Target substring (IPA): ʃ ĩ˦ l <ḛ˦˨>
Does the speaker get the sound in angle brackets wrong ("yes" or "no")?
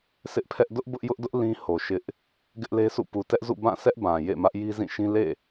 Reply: no